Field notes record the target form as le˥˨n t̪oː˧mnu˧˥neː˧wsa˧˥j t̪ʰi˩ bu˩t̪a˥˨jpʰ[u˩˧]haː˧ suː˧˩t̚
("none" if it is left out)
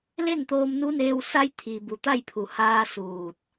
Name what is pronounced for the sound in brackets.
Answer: u˩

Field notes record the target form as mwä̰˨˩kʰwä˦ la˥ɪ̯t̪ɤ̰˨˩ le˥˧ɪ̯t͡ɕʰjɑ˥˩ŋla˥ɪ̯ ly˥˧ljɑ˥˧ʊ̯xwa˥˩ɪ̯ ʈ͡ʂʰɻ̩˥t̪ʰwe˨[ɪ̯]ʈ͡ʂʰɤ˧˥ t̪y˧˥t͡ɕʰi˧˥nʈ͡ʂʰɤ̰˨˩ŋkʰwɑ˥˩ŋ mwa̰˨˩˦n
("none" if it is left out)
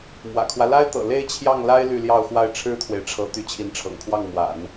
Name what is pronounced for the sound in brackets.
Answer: ɪ̯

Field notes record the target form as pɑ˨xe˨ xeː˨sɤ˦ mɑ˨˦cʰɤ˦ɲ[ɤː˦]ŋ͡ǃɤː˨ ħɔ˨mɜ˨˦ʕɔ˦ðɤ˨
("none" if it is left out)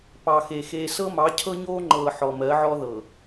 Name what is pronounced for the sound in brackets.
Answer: oː˦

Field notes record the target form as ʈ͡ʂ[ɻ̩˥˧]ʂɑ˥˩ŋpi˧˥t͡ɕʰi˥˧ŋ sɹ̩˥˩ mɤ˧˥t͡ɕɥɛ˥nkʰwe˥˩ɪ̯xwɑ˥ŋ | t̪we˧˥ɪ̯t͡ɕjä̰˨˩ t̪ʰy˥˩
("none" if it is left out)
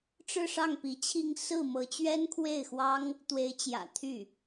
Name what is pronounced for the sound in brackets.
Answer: ɻ̩˥˧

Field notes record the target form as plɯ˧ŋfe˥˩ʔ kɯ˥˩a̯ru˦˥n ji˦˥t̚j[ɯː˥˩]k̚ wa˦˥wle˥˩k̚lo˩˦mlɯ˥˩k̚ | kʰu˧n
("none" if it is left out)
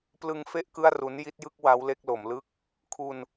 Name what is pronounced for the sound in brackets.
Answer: ɯ˥˩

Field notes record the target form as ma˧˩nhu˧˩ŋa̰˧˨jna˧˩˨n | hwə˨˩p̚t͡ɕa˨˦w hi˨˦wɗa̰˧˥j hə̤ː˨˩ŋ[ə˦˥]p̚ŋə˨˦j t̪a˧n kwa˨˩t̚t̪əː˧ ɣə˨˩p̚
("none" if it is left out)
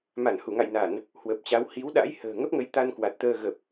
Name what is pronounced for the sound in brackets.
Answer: ə˦˥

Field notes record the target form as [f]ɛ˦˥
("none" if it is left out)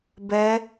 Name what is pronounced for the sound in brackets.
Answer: b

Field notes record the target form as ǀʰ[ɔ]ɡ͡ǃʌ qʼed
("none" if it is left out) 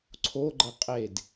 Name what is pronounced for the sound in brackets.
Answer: o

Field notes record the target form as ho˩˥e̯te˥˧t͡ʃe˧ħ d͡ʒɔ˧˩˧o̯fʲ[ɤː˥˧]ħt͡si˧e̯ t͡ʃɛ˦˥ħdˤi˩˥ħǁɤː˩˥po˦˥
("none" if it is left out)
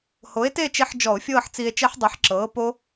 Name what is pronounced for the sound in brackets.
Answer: ɤː˥˧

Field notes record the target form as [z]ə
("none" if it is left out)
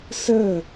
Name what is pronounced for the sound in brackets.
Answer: s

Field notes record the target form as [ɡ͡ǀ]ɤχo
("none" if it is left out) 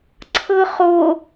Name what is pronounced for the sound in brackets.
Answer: ǀʰ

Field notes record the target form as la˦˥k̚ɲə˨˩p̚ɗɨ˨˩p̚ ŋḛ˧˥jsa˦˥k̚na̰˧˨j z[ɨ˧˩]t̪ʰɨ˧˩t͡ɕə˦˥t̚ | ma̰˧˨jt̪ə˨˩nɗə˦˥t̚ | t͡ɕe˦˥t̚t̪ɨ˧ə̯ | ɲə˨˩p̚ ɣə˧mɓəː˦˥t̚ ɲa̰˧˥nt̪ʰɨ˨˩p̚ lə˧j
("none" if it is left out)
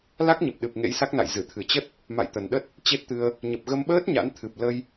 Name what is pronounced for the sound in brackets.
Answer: ɨ˧˩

